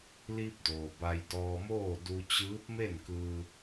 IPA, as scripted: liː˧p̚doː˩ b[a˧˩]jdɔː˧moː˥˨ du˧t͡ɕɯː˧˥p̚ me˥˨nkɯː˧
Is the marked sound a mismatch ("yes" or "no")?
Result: yes